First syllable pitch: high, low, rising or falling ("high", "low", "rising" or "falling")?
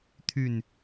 low